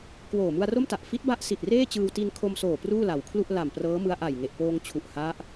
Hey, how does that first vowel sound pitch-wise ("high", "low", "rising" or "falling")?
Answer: low